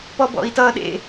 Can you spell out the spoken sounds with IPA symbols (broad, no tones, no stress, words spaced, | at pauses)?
pɔbɔ̰i̯tʌ ɗḛ